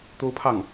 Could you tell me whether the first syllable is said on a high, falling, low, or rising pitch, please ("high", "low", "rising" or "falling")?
high